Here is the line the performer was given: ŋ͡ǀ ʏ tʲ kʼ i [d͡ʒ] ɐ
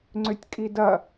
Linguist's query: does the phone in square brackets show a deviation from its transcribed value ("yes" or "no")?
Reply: yes